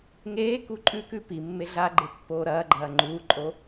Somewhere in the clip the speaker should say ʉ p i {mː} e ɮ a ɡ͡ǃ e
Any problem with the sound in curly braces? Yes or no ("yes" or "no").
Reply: no